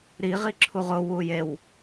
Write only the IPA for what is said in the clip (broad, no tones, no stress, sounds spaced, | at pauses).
ɾ i ʁ i ǁʰ u ʁ ʊ w u j e w